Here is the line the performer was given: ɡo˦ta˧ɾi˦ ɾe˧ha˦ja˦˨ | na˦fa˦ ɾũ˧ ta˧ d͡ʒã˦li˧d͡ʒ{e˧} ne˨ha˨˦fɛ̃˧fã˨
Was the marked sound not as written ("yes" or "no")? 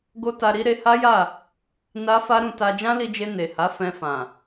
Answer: no